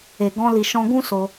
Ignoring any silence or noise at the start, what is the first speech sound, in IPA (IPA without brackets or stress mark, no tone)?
e